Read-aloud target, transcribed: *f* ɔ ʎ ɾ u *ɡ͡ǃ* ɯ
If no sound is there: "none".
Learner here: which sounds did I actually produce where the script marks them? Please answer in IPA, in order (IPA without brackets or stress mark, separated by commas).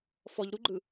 f, ɡ͡ǃ